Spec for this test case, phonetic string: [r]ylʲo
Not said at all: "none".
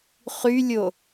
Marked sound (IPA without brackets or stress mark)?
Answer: χ